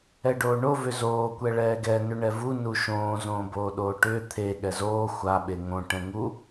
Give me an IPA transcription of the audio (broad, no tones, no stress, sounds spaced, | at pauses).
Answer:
ɛ ɖ oː ɳ o v ʏ z oː kʷ ɛ ɭ ɛː ɡ ɛ n ʏ ɳ ɛ v u n u ʃ õː z õː b oː ɗ oː ʈ ʏː t̪ʰ e ɠ ɛ z oː xʷ a ɓ e ŋ õ ʈ ɛ̃ ŋ u